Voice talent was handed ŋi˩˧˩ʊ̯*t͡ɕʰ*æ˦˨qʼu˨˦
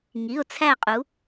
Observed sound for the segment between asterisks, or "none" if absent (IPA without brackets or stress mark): t͡sʰ